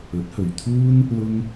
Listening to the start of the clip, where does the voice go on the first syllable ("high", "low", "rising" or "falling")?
rising